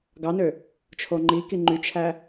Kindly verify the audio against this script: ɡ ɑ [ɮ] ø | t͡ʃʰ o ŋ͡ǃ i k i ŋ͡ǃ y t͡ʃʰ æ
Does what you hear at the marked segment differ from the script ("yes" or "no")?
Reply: yes